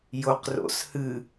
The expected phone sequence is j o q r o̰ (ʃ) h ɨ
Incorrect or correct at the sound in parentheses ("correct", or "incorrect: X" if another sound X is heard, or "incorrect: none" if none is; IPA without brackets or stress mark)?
incorrect: s